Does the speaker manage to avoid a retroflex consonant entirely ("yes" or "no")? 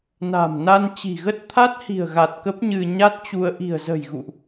yes